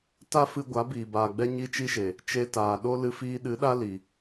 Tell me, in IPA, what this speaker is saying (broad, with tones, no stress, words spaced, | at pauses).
ta˦fɨ˧ ɡʷa˨˦biː˨ baː˨ɡ͡bɛ˦ ɲi˦ t͡ʃi˦ʃe˨ | t͡ʃe˧ taː˨ ɗo˦ lɨ˧fiː˧ ɗɨ˨˦ɗa˦ li˨